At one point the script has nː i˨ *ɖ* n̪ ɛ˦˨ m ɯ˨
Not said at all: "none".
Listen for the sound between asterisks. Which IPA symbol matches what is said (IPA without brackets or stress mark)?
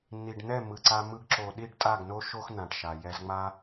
ɖ